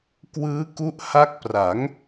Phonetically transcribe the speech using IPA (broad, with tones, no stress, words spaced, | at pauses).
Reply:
kwɯː˦˥ku˦˥ʔha˦˥k̚pra˩˦ŋ